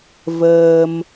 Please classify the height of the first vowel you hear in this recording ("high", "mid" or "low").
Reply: mid